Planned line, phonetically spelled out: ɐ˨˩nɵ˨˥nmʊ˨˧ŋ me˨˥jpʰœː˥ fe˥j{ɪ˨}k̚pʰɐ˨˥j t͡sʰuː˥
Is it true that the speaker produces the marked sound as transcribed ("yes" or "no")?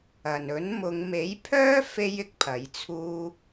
no